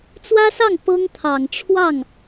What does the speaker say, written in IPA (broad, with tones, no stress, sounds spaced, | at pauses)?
t͡s w ä˥ s ɑ˥˩ ŋ p ɤ˥ ŋ t̪ʰ ɑ˨˩ ŋ ʈ͡ʂʰ w ɑ˥˩ ŋ